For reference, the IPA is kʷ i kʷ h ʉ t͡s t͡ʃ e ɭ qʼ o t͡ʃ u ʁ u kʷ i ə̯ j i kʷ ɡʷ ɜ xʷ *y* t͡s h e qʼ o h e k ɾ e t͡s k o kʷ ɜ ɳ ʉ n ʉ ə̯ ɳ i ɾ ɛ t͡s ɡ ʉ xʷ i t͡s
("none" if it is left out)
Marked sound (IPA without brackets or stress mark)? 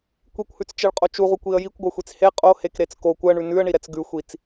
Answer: i